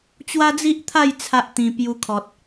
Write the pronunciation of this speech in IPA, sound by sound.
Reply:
t͡ɕ w a˦ d͡z i˦ ʔ t̪ʰ a˥˧ j t͡sʰ a˦ ʔ t̪ ĩ˧ p j u˧ kʰ ɔ˨ t̚

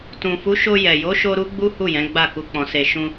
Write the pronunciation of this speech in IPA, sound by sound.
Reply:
t ũ˨ f u˨˦ ʃ o˧ j ɛ˨ j o˨˦ ʃ o˧ ɾ u˦ ɡ͡b u˦ h u˦˨ j ɛ̃˨˦ ɡ͡b a˦˨ k u˧ k͡p ɔ̃˧ s e˧ ʃ ũ˧

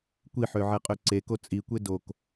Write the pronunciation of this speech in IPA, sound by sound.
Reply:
kʷ i ħ ø ʕ ɛ qʼ ø ǀ e k o t͡sʼ i kʷ e d o k

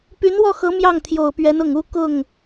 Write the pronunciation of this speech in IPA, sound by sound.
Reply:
p y˧˥ n w ɔ˥˩ x ɤ˧˥ m j ɑ˥˩ ŋ t̪ʰ j o˨˩ ʊ̯ p ɥ ɛ˧˥ n ʊ˨˩ ŋ u˥˧ k ʊ˥˩ ŋ

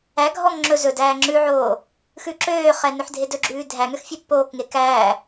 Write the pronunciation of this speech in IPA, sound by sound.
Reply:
æ ɡʱ ɔ ŋ ŋ͡ǁ ɵ z ɵ d æː ŋ͡ǁ ʉ ʕ oː | x ʉ ǁ øː χ ɛ n ɵ ħ dʱ e d ɵ ɡ͡ǁ ʉː dʱ æ ŋ ø x fʲ ɛ pː oː k ŋ e k æː

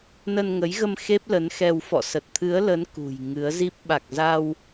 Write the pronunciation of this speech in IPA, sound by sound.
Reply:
n ə˧ n ŋ ə˨˦ j ɣ ə˧ m x e˦˥ p̚ l ə˨˦ n x ɛ˧ w f ɔ̰˧˨ s ə˨˩ t̚ t̪ʰ ɨ˨˦ ə̯ l ə˨˦ n k ṳ˨˩ j ŋ ɨ˨˦ ə̯ z i˦˥ p̚ ɓ a˨˩ k̚ z a˧ w

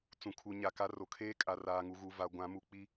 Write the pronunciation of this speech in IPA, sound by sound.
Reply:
t͡s ũ˨ kʰ u˨ ɲ a˨ k a˦ r o˨ kʰ eː˦ kʼ a˨ r aː˨ ŋ u˨ ɣ u˨ v a˨ ɡʷ ã˨˦ m u˨ k͡p i˦

